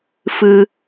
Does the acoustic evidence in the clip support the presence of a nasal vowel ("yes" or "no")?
no